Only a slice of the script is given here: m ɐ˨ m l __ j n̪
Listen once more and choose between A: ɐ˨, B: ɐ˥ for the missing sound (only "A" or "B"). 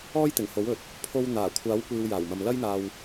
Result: B